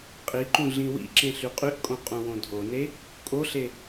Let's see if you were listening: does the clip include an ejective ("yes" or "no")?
yes